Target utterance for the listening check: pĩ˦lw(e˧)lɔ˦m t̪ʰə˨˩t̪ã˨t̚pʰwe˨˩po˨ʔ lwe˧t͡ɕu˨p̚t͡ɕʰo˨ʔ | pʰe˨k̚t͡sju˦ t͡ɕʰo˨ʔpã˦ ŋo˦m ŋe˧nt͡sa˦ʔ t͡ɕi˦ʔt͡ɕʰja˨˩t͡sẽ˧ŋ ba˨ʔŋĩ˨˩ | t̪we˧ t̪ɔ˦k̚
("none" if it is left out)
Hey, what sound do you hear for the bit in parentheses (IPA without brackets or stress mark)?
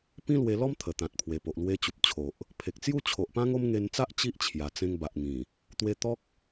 e˧